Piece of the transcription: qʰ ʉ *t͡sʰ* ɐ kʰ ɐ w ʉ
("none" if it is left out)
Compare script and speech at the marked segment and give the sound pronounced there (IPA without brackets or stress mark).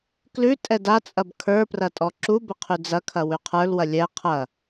d͡z